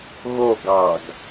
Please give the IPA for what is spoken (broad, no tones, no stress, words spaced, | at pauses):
ɣo ɡɑɡ